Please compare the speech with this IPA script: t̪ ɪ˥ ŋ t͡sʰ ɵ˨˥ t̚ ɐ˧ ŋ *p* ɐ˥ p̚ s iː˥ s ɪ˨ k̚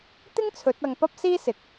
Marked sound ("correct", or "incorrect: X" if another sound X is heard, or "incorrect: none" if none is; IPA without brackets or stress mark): correct